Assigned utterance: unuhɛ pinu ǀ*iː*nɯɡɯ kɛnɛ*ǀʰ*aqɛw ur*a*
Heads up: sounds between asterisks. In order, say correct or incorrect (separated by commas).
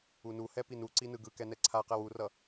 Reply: incorrect, correct, incorrect